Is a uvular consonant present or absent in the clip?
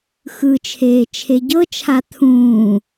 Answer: absent